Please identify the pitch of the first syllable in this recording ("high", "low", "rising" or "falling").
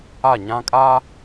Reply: falling